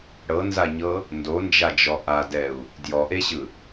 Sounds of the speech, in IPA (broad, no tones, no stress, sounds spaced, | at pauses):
ɽ ɤ n z a ɲ ɤ | n d o n d͡ʒ a d͡ʒ ɔ ʔ a d ɛ u̯ | d j ɔ ʔ e ɕ ɯ